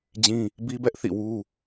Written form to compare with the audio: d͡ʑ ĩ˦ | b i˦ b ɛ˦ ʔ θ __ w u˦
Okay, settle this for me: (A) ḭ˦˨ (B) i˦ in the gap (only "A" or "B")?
A